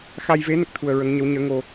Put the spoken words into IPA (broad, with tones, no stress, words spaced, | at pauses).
xa˧jve˧˥ nə˦˥k̚t̪ʰu˧ə̯ ɹə˧˥ŋ ɲə˧˥wɲəː˧˥ ŋo˧